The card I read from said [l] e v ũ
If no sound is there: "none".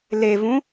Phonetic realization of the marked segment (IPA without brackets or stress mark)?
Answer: l